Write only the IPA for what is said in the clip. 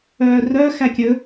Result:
œːrœ xækʲɵ

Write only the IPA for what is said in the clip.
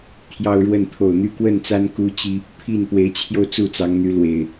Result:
t̪ʰjɑ˦ʊ̯ɻwə˥˨n t̪ʰo˨˩ʊ̯n̪y˥˨kwə˥˨nt͡sa˦n ku˦t͡ɕi˦ | pʰi˥˨n pwe˨˦ɪ̯t͡ɕʰjo˧ʊ̯ t͡su˥˨t͡sɑ˨˦ŋn̪y˨˦ lwe˨˩ɪ̯

